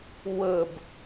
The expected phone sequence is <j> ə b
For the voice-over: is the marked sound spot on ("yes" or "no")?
no